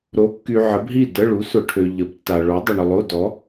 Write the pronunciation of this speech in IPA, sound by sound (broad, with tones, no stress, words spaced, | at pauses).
ɾo˨˥kːy˨ ʕə˨˥bɦi˥˨də˧˥˧ɭu˨˥ sʊ˨ʈʰø˨ ʎə˨˩˦btːa˨ɭo˨˥dˤu˨ɳ ʊ˨lˠo˧˥˧ dɔ˨˥